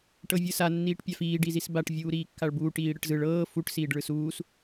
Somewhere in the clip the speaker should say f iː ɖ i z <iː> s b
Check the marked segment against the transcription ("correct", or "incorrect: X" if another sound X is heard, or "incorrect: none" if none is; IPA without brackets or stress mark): incorrect: i